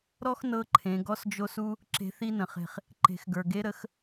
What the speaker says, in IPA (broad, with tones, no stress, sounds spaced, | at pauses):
ɾ ɔ˥ x n ɤ˧˥ ǃʰ ẽ˩˧ ɡ ɔ˥ s d͡ʒ o˥ s u˥ | ǁ e̤˧˥ θ i˥ n ə̃˩˧ χ e̤˧ χ | ǃ e̤˩˧ x ɡ ə˞˩ ɡ e˧˥ ɾ ə˩˧ x